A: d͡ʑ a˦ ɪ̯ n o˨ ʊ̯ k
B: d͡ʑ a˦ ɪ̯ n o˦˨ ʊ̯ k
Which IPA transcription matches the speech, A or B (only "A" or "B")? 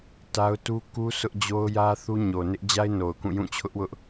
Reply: A